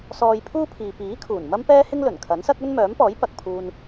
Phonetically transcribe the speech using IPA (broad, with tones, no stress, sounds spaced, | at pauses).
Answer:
s ɔː˧ j pʰ uː˥ pʰ iː˨ p iː˨˥ kʰ uː˨˩ n m ɐ˥ m p ɛː˥ h ɪ˥ ŋ l ɵ˨˩ n kʰ ɐ˨˥ n s ɐ˥ k̚ ɵ˥ n m œː˨˥ m p ɔː˨˥ j p ɐ˨ k̚ pʰ uː˧ n